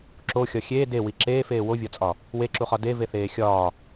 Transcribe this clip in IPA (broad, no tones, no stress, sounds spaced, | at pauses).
ǁ o xʲ ɒ xʲ eː d e w i ǁ eː f eː w o vʲ ɒ t͡sʼ ɒ | w e ǁ u χ ɒ d e v e θ eː xʲ ɒː